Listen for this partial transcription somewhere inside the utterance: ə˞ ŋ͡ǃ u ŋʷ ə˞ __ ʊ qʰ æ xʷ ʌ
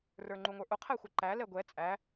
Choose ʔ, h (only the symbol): ʔ